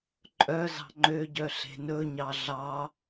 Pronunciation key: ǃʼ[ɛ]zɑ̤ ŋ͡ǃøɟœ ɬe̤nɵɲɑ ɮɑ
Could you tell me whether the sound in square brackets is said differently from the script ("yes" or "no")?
yes